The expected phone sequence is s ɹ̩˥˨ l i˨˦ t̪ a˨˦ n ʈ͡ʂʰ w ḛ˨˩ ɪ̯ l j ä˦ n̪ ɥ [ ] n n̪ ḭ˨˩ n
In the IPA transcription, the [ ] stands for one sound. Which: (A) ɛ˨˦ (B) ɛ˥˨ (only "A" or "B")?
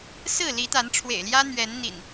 A